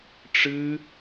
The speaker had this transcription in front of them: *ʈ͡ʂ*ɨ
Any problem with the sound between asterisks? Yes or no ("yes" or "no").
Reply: no